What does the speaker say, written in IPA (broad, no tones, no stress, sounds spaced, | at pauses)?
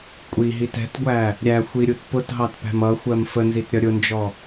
kʷʼ i ɦ i t ɛ̤ t ɡʷ æ | ɾʲ æ xʷ i ɾʲ u t p ʊ t ɦ ɑ t p æ̤ m ʌ xʷ ɜ m f ə n z i t ɾʲ ʌ ɾʲ ʊ n d͡ʒ ɔ